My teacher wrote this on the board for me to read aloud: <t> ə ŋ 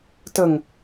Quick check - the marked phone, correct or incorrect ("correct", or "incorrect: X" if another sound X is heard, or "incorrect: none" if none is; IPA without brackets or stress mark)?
correct